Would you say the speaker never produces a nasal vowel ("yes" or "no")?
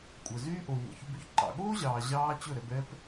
yes